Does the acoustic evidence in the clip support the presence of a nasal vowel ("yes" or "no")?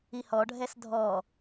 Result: no